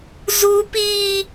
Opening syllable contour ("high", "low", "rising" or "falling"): high